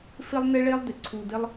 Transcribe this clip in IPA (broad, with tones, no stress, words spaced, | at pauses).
fɪ˦lˠnɪ˦ɭe˦lˠ dɪ˨ǀʰu˧dɪ˦lˠ